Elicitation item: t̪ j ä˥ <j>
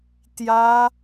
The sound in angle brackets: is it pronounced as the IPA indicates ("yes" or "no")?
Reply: no